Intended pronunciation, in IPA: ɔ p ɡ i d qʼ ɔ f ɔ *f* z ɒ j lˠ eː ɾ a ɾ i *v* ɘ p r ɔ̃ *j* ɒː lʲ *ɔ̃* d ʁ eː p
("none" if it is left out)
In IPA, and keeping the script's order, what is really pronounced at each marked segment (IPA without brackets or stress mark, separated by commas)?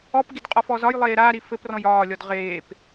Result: none, f, j, ɔ